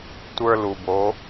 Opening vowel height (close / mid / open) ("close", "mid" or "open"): mid